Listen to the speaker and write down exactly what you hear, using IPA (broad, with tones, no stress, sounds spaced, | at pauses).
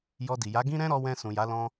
j ɔ˧ d i˨ j a˨˦ ɡ ĩ˦ ɾ ɛ̃˦ ɾ ɔ˧ w ɛ̃˧ s ũ˨ j a˨˦ l ɔ̃˦